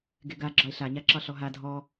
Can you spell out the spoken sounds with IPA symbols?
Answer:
ɡ e ɡ a ɡ͡ǁ ɒ e̯ ɬ a ɲ a ǁ ɒ ɬ ɔ ɦ a dʱ ɔ

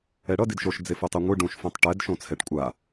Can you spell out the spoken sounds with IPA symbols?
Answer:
ɛ ɽ ʌ d i d ʃ o ʃ d͡z e f u tˤ e ŋʷ ɯ ɖ ũ ʃ f õ tˤ ʈ ɛ d ʃ õ t͡sʰ ɛ ʈ kʷʼ a

